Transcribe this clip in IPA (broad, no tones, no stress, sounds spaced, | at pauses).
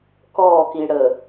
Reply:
k ɔ k i ɽ ə